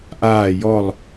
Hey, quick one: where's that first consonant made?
throat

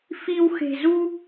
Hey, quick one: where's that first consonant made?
lips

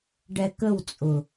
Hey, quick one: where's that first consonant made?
retroflex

